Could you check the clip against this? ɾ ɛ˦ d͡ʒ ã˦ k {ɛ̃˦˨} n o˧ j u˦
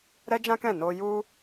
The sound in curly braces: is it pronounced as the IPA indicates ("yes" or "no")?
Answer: yes